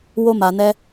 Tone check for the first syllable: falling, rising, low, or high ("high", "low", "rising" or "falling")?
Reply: high